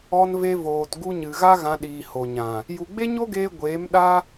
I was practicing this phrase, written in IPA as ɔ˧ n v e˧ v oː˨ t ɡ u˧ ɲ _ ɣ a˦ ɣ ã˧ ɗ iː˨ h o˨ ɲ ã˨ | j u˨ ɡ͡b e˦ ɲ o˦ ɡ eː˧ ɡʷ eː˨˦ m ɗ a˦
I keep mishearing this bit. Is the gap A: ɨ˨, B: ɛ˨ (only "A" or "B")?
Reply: A